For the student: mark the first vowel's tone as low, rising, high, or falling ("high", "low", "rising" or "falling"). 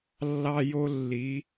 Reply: high